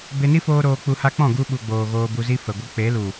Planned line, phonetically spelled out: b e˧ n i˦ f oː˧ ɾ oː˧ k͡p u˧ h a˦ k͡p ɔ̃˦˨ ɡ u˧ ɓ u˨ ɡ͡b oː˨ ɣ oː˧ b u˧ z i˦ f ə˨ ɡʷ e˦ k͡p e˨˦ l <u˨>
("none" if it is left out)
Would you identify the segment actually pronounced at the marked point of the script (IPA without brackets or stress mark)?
u˨